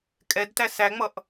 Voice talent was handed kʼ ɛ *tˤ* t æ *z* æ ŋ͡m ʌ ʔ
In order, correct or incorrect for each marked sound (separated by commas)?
incorrect, incorrect